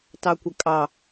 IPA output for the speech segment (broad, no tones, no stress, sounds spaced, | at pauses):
t ɑ kʷ ə kʼ ɑ